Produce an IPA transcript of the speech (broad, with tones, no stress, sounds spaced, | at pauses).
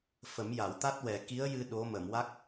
f ə˨˩˦ m j a˨˩˨ w t̪ a˦˥ t̚ w ɛ˨˩ k i˧˥ ə̯ j ɨ˧ ɗ o˧˥ m ə˨˩˨ m w a˦˥ k̚